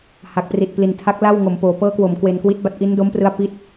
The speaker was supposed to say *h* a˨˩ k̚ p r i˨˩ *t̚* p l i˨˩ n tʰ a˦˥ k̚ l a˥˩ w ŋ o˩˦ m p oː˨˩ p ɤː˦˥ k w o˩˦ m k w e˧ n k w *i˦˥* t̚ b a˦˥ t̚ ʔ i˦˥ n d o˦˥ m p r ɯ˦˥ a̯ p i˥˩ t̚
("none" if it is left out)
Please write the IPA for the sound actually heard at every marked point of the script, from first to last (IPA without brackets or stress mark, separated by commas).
h, t̚, i˦˥